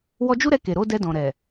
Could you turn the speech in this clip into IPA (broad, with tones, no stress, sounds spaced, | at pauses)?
w ɔ˧ d͡ʒ u˦ ɾ ɛ˧ k e˨ ɾ o˨˦ d ɛ˧ d ɔ̃˨ ɾ ɛ˨